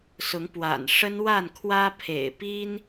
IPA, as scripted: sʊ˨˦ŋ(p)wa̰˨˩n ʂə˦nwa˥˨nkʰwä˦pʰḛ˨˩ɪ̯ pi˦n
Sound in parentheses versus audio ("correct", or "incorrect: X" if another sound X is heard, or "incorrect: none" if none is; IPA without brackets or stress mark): correct